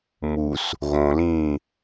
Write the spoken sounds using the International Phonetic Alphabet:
m u s | ɣ õ l ĩː

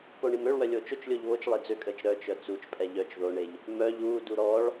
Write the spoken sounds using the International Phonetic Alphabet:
p o ɳ i m ø ɭ w œ lʲ o t͡ʃ o t͡ʃ lʲ o ʎ β o t͡ʃ lˠ e d͡z ø kʼ əː t͡ʃ ɾ œ t͡ʃ œ t͡s u t͡ʃ pʼ ɛ ʎ œ t͡ʃ ð o ɳ e ʎ | m œ ʎ uː d u ɾ ɔ ɭ

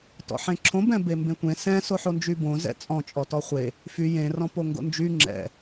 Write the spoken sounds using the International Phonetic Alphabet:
t ɔ̰ ħ ẽ ǁʰ õ b ɛ̃ b e m b ẽ tʷ ẽ s ɛ̃ s o ħ o n d͡ʒ y b õ z ɛ̰ t͡sʼ ɔ̃ t͡ʃʼ ɔ t ɔ χʷ e | f y j ẽ r ɔ̃ p o ŋ ɡ o̰ n d͡ʒ y ŋ͡ǁ ɛ̰

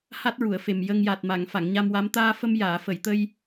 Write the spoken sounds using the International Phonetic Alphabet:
h a˦˥ t̚ ɹ u˨˩˨ ə̯ f e˨˩ m j ə˧ ŋ j a˨˩ t̚ m a˨˩˨ ŋ f a˨˩˨ ŋ ɲ a˧ m w a˧˥ m t̪ aː˧ f ə˧ m j aː˨˩˨ f ə˨˩˨ j t̪ ə˧ j

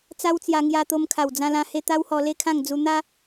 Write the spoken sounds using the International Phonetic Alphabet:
t͡s a˦ w t͡s j a˧ ŋ j a˧ t̪ o˧ m kʰ a˨˩ w d͡z ã˧ l ã˧ h e˧ t̪ a˦ w h ɔ˧ l e˥˧ kʰ ã˥˧ ŋ d͡z u˧ n̪ a˦

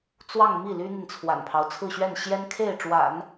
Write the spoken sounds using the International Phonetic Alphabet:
t͡s w ɑ˥˧ ŋ m i˥˩ l y˥ n̪ i˨ n t͡sʰ w a̰˨˩ n pʰ ɑ˦ ʊ̯ t͡sʰ ɹ̩˥˧ ɕ ɥ ɛ˥˩ n ɕ j ɛ˥ n kʰ e˥˩ ɪ̯ ʈ͡ʂ w a̰˨˩˦ n

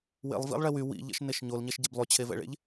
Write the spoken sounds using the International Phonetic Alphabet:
w ḛ lˠ v ḭ lˠ ɭ ɛ w y w ḭ ʎ ɛ̰ ʃ n e ʃ ɲ o l ɲ ɛ ʃ ɟ e b lˠ y t͡ɕʰ e v ɛ̰ ɭ ḛ ʎ

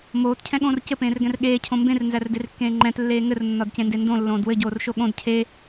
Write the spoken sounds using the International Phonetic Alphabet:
m oː t cʰ ɛ̃ ɠ õː r c ɘ p ẽː r ɡ ɛ̃ r ɠ eː cʰ õ m b ẽ r n z æ r d e r kː ẽː ŋ͡ǃ ɛ̃ t lː eː ŋ ɘ r nː ɒ d c ẽ n d e n d õ lː õː d w ɘ ɟ oː r ʃ o ɠ õ d cʰ e

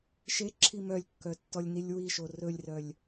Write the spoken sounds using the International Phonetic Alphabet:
ʃ e ǁʰ i m œ lʲ kː œ tː ɔ lʲ n i lʲ w i ʃ o r ɵ lʲ r œ lʲ

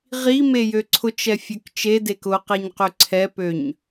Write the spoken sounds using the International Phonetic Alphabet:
ʁ i m e j ø ǀʰ ʊ t͡ʃ ɛ fʲ ø k t͡ʃ e d e k ʊ q e ɲ q ø ǀʰ ɛ p ø ɲ

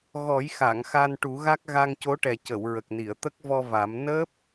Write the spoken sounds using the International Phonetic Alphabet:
ɣ ɔ˨˩˦ j x a˨˩˨ ŋ x a˧ n ʈ u˨˩˦ ɣ a˦˥ k̚ ɣ a˧ ŋ c o˧˥ ʈ ɛ˨˩ c ə˨˩˨ w ɹ ə˨˩ k̚ n i˨˩˨ ə̯ t̪ ə˦˥ k̚ v ɔ˧ v a˨˩˦ m n əː˦˥ p̚

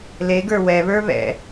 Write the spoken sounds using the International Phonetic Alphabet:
l e ɡ ə˞ w ɛ β ə˞ β ɛ̰

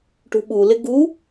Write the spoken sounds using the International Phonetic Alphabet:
ʈ ṳ ɓ u l ɪ ɡ u

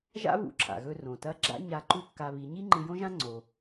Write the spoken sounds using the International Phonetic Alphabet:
ʒ a̰˥ β ṵ˧ ǁʰ a̰˩ ɣ ɵ˧ r õ˩ t ɐ˧˥ ɡ͡ǁ a̰˥ ɲ a˧˥ ǃ u˥ kː a˧ β i˩˧ ɲ i˥ ŋ͡ǃ ɨ˧ j õ˥ ʒ ã˥ ŋ͡ǀ o˩

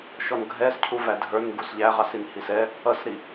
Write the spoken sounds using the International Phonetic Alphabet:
ʃ ɔ n ɡʱ ɛ s cʰ u v æ dʱ ə˞ n ɡ u s ʎ æ ʁ ɑ s i n h i s ɛ | ʌ s ɾ i

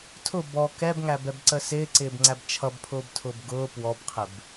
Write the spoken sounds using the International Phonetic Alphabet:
tʰ ʊ b ɔ k ɛ b ŋ æ b ɛ b ǀ ə s ɪː ǀ ɪː b ŋ͡ǀ æ b t͡ʃʰ ʌ b pʰ ʊː b tʰ ʊː b ɡ ʊː p w ɔ b qʰ ɪ b

